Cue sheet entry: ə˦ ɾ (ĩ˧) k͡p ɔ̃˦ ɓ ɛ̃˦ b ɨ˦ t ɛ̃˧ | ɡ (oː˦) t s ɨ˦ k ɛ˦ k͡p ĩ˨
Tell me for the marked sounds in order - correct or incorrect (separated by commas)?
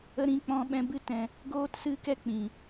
incorrect, correct